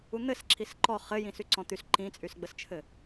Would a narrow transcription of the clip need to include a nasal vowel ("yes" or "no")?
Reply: yes